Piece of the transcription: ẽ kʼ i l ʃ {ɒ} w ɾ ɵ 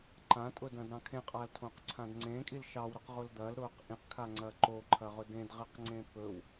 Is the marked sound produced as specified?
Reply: no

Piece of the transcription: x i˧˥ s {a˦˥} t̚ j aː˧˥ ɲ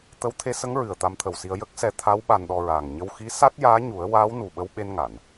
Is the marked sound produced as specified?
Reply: yes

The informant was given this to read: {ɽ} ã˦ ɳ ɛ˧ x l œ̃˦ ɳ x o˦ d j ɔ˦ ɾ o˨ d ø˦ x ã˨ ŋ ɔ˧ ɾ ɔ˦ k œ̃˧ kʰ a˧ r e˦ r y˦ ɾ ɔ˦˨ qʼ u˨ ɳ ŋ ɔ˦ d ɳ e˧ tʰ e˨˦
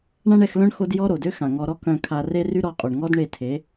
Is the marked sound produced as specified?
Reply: no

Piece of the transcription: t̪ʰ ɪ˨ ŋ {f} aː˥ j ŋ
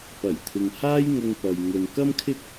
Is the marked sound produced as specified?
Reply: no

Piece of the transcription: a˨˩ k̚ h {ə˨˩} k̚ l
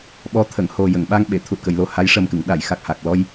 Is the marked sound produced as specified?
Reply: no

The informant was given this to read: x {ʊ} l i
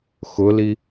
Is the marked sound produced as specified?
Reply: yes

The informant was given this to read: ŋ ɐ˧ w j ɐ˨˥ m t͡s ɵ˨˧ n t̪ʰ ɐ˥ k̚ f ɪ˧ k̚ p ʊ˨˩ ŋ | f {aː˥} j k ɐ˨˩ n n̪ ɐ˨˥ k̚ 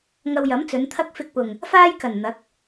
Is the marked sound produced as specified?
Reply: yes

